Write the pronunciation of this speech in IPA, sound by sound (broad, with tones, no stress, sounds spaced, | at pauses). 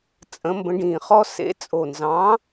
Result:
t͡sʼ ə̃˨˥ m b ə̃˨˥ ɖ ĩ˨˩ χ ɔ˥ s ḛ˨˥ t͡sʼ o˨˩ n z ɑ̃˨˥